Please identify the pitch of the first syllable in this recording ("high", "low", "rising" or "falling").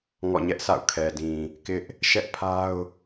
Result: falling